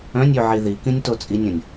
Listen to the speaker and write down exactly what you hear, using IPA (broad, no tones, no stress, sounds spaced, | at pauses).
œ̃ nʲ y ʕ i ð i k ĩ nʲ t o t͡sʼ i nʲ ə̃ nʲ